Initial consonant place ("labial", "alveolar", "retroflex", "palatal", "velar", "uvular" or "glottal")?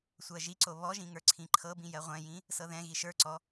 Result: alveolar